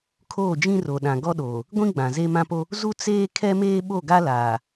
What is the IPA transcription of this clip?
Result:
kʰ oː˦˨ d͡ʒ ĩ˦ r o˨ ɗ ã˨ ɡ ɔ˦ ɗ oː˨ | ɡʷ ĩ˦ ɡ͡b ã˨ z e˦ m ã˦ p o˦ | z u˦ t͡s eː˦ kʰ ɛ˦ m eː˦ ɓ o˦˨ ɡ a˦ l aː˨

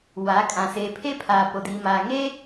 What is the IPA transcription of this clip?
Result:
w a˨˦ kʼ ã˨ s eː˨ pʰ e˦ pʰ aː˨ p o˨ d iː˨ m aː˨ ŋ e˦

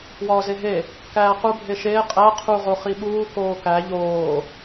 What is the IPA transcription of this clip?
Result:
w ɒː z e ɦ e | k æː q u bʱ e ʃ eː qʼ æ qʰ u ʁ o χ i ɓ uː k oː k æ ʎ oː

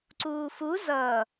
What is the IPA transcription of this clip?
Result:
ǀ uː f u z ʌ

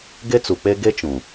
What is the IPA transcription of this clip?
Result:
ɡ e˦ t͡s u˨ k͡p e˦ ɡ e˦ t͡ʃ ũ˨

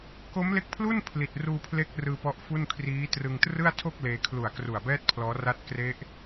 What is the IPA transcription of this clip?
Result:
k o˦˥ m l e˦˥ k̚ pʰ l u˥˩ n pʰ l i˨˩ t̚ r uː˧ pʰ l e˦˥ k̚ r ɯː˧ p ɔ˦˥ ʔ f u˥˩ n kʰ r iː˦˥ t r ɯ˧ ŋ t r ɯ˥˩ a̯ tʰ o˥˩ k̚ l eː˧ kʰ l u˨˩ a̯ k r u˨˩ a̯ b ɛː˥˩ t̚ pʰ l ɔː˦˥ r a˦˥ t̚ k r e˦˥ ʔ

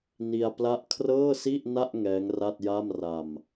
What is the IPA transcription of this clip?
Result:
n i˧ a̯ p l a˦˥ ʔ kʰ r ɤː˥˩ s i˥˩ ʔ n a˥˩ ʔ ŋ ɛː˦˥ ŋ r a˥˩ t̚ j a˥˩ m r a˨˩ m

